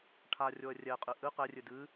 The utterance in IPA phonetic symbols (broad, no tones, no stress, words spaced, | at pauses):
ʈʰarʲoə̯ rʲɛqʼɨ ʔɨ qɛrʲɨ dɨ